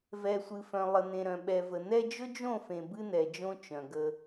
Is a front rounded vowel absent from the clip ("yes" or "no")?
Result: no